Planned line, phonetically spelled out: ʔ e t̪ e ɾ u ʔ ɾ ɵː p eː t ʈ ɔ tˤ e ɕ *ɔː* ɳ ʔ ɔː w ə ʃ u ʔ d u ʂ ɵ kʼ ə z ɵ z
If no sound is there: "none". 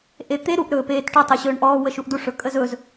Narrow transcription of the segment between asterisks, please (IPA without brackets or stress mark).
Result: ɵː